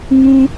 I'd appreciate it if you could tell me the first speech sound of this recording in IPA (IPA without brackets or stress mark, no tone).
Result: ŋ